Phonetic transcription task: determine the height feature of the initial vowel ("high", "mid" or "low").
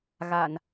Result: low